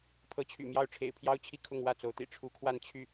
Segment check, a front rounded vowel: present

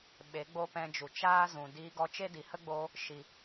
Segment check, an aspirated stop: absent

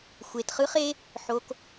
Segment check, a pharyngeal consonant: present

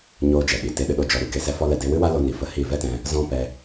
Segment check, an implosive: present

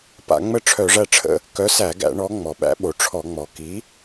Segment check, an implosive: present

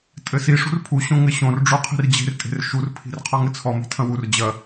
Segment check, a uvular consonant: present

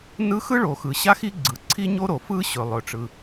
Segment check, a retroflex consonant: present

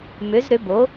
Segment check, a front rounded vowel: present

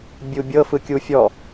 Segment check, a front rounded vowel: absent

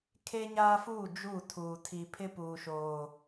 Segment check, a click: absent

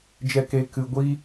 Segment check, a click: absent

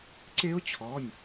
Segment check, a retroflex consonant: absent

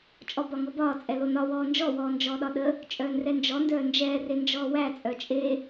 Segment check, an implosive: present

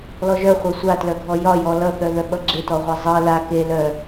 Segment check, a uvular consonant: present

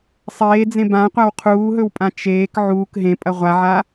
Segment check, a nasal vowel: present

